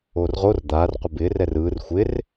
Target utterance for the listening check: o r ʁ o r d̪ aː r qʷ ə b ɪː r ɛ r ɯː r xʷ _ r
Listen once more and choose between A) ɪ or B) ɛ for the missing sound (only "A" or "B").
A